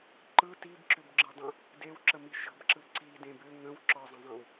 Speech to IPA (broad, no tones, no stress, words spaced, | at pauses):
ǃɯ tibǁʏbɡ͡ǁɯdˤə̃ | dewǁəmi ʃə̤bǁɯ ǀidẽb ʏ ŋə̃w ǁɒzˤə̃zˤẽw